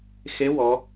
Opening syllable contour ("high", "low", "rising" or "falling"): rising